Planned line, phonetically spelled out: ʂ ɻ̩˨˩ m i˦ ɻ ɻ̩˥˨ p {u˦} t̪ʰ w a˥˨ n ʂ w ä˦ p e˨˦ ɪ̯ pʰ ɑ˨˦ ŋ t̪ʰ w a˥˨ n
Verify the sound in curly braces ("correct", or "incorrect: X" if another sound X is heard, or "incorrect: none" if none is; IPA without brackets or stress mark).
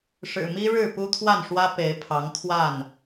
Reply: correct